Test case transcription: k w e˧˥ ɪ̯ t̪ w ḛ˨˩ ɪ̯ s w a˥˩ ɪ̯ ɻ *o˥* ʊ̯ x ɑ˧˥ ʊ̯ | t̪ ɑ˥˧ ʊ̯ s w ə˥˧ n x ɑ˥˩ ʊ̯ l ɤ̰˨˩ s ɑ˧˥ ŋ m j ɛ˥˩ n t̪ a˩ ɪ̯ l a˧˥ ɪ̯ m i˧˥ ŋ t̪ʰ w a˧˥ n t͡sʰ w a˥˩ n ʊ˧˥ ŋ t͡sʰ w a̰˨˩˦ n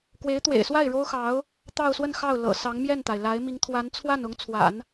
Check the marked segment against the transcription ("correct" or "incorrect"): correct